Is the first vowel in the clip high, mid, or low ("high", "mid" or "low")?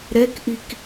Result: mid